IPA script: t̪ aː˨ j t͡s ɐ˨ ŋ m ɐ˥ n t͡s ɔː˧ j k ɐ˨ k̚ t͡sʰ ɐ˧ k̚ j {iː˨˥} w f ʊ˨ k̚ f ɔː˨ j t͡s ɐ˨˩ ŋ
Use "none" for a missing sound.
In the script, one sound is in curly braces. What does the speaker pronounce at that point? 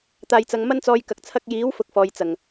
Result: iː˨˥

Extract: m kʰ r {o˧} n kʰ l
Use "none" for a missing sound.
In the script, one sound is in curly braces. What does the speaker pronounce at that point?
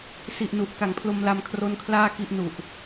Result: o˦˥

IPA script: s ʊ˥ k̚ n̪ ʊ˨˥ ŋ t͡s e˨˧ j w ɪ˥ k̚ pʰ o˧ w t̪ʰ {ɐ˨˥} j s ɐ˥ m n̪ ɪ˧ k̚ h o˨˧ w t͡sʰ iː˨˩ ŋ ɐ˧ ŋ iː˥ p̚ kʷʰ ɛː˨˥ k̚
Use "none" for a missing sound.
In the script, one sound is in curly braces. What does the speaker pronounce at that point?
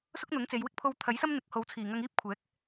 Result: ɐ˨˥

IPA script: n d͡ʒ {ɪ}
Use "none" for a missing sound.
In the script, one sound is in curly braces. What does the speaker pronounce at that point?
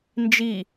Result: i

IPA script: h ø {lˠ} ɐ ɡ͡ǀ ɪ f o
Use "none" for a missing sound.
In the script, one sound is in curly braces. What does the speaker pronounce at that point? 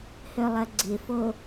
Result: lˠ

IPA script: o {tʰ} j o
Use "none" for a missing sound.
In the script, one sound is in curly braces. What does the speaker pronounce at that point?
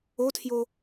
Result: tʰ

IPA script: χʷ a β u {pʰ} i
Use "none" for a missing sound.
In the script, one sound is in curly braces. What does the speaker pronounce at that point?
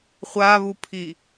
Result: pʰ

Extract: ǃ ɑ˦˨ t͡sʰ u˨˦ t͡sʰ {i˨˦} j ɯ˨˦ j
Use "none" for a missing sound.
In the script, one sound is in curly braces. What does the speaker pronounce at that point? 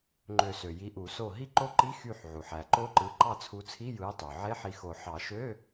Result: i˧˥˧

